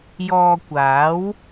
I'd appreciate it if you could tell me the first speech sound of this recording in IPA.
j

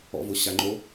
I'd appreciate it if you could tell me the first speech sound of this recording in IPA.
ɔ̰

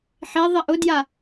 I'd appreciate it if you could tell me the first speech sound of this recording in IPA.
ħ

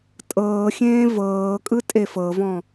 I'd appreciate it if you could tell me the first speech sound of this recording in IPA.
tʼ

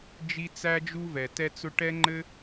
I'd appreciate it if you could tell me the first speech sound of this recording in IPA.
d͡ʒ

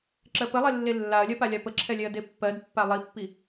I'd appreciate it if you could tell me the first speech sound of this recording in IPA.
ǁ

